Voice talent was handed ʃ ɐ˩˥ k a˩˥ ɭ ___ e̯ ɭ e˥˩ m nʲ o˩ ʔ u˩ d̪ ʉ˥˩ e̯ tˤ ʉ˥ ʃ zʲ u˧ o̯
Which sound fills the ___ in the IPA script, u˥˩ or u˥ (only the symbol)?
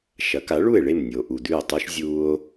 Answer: u˥˩